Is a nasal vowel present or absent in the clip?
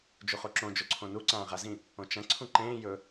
present